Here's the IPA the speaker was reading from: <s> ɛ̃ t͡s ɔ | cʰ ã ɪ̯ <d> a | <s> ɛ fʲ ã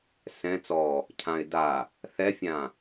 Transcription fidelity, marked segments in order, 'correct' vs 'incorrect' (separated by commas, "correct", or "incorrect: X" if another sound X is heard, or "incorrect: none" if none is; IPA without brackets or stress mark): correct, correct, incorrect: θ